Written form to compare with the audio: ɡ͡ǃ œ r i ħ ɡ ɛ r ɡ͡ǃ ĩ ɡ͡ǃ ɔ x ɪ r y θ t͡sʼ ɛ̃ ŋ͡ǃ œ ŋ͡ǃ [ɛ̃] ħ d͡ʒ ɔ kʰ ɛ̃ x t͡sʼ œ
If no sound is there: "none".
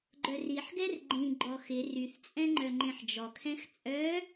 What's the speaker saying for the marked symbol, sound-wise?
ẽ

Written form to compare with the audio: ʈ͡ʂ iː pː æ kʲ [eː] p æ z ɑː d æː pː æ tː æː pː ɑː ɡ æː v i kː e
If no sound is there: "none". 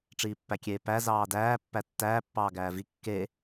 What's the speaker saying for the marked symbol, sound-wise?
eː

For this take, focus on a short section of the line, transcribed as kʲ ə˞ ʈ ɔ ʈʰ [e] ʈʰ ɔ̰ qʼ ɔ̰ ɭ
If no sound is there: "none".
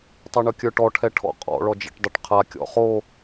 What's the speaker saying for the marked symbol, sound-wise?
ɛ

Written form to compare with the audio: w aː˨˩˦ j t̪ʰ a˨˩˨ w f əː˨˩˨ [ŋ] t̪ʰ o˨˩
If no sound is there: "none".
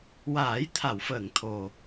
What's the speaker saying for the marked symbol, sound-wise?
ŋ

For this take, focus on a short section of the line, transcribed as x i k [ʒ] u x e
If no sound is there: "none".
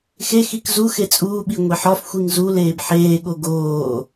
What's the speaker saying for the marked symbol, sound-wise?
z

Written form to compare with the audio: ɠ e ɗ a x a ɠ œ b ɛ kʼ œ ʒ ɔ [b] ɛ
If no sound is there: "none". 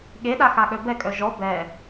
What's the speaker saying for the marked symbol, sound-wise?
b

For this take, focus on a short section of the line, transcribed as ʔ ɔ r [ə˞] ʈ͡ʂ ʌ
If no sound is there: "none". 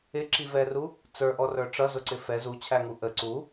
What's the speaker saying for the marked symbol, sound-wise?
ə˞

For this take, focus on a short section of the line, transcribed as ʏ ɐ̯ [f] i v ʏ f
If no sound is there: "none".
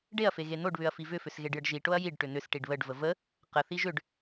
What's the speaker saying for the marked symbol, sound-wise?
f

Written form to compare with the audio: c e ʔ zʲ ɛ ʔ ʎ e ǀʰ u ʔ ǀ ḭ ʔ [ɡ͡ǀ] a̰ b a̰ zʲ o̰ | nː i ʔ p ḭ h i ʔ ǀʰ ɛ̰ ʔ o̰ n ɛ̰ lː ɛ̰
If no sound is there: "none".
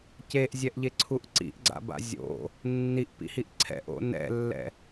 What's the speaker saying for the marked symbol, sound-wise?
ɡ͡ǀ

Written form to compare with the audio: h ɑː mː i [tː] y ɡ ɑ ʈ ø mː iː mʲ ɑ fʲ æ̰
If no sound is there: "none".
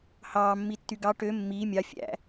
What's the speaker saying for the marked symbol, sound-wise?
tː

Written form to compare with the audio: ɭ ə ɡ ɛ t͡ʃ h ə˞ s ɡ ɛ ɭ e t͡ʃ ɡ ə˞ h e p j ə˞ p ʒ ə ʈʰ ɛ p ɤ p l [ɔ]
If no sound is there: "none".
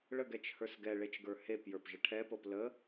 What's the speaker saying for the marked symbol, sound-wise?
ə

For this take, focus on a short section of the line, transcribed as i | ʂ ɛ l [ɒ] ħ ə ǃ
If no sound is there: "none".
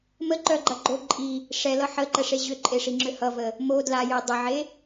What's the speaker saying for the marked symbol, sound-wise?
ʌ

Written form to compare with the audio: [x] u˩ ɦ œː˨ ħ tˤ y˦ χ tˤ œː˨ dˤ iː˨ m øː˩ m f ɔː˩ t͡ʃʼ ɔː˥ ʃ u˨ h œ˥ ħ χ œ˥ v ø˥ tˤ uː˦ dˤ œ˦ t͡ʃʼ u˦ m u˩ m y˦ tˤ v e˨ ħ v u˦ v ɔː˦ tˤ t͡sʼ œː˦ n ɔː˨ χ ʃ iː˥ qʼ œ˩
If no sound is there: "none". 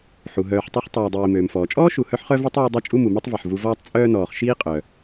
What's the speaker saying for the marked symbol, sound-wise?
ħ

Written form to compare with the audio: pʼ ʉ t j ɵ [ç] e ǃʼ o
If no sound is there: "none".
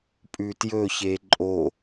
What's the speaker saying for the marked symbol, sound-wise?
ç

